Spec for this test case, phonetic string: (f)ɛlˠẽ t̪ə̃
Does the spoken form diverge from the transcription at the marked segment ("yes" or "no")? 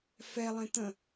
no